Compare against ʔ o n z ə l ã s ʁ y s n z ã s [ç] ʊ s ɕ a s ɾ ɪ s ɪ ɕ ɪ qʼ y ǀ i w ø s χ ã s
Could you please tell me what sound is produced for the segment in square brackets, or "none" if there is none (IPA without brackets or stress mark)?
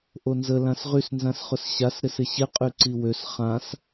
χ